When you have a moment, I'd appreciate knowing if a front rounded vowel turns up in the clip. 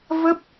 no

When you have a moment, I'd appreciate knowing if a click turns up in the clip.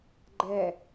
yes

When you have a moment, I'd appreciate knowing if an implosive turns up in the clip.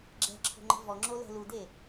no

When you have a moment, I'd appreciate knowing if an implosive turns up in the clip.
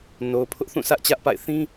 no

